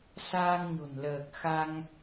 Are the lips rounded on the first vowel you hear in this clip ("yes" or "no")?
no